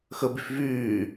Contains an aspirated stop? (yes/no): no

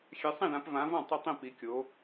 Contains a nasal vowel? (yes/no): yes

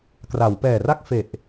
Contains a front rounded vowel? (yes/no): no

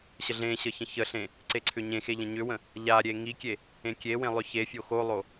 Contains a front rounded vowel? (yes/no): yes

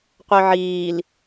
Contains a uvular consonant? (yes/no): yes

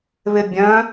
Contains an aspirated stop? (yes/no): no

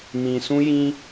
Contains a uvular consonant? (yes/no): no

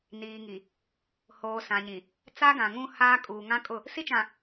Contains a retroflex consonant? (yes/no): no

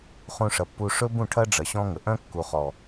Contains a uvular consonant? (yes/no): yes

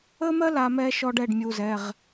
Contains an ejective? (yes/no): no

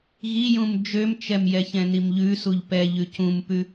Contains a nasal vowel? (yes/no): yes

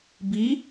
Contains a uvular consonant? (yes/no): no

